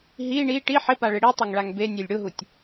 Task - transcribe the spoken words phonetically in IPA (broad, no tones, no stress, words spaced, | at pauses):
ɦi ɳi ʈi ħɪpaɭɪ ɽitˤeŋɭaŋ benʲelʲ ɽʊɦutʲ